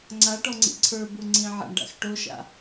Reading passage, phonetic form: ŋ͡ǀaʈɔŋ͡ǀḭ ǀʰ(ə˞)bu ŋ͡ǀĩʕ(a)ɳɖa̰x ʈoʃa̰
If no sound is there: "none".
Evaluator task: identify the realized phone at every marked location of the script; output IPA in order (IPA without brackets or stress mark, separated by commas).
ə˞, a̰